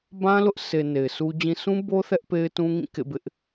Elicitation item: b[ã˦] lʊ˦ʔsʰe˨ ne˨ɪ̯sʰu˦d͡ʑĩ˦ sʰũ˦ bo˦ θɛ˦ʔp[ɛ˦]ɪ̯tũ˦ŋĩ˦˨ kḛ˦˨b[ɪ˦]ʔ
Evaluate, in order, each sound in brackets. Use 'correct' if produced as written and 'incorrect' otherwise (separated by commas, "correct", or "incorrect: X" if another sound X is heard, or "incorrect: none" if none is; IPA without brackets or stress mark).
correct, incorrect: e˦, correct